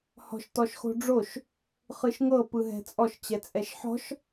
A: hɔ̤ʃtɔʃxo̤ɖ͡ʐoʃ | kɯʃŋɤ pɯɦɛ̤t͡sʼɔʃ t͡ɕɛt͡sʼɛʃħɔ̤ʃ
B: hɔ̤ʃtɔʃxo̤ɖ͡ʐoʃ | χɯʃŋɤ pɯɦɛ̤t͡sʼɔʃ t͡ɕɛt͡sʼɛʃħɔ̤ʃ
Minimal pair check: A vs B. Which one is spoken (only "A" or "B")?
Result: B